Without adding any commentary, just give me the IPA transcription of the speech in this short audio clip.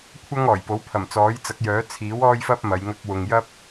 kʷʰɐ˥ŋɔː˨˩jpo˨˥w pʰɐ˨˩mt͡sɔː˨˥jt͡sɐ˨˥k̚jœː˨˥ t͡sʰiː˨˥wɔː˥jfɐ˥p̚ mɐ˨˧j ŋɐ˧k̚wʊ˨ŋjɐ˥p̚

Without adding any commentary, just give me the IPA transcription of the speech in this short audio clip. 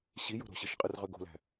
ɕijo̤ ɾo̤ɕiʃqʼɯrʁø ɡo̤læ̤

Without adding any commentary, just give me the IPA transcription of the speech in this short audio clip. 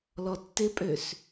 lɔtːɪpʼøs

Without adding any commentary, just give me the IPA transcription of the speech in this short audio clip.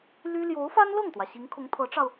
ly˥ ljo˧˥ʊ̯fa˥nlɤ˥˩ŋt̪wä˩ ɕi˧˥ŋkʰʊ˧˥ŋt̪ʰɤ˧˥ʈ͡ʂɑ˧ʊ̯

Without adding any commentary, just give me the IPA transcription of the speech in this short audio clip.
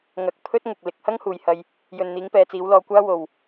ŋɐ˧k̚ pʰɵ˥t̚ ŋʊ˨k̚ lɪ˨˥k̚ hɐ˥ŋhuː˨jhɐ˧j | jɵ˨nn̪iː˨˧ŋpɛː˨t͡siː˨˧w lɔː˧kʷaː˥ wo˨w

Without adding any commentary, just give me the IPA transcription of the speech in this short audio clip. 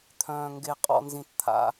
t̪ʰœ̃ː˩ŋɡe˩ qʼɔ̰˩nzĩ˩tt̪ʰa̰˩

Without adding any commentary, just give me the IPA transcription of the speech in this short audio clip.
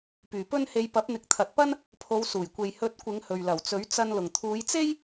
pyː˨˩pɵ˥nhe˧j pɐ˨˥p̚n̪ɪ˨˥k̚t̪ʰɐ˨t̚pɐ˥n | pʰo˨˧w suː˨˩jkʷe˨j hɵ˨˥t̚kʷɪ˨˧ŋ hɵ˨ɥlɐ˨˩wt͡sɵ˨˥ɥ t͡sɐ˧n lʊ˨˩ŋt̪ʰuː˨˧jt͡se˥j

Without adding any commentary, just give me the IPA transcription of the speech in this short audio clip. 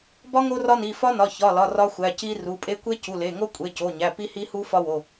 bɒ˦˥ ŋo˦˥rɒ˦˥ni˩˧˩ fɒ˦˥nɒ˩˧˩ çɒ˩˧˩lɒ˩˧˩ rɒ˦˥xʷæ˩˧˩ci˦˥ ru˩˧˩pʼe˦˥ kʷe˦˥cu˩˧˩le˩˧˩ŋo˦˥ kʷʼe˩˧˩co˩˧˩ɲæ˩˧˩ pi˦˥hi˦˥hu˦˥ fɒ˦˥wo˩˧˩

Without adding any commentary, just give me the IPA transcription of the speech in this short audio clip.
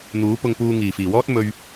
n̪uː˨˥ pʊ˧ŋpuː˧ ŋiː˨˩fiː˨˩wɔː˥t̚ mɵ˧ɥ

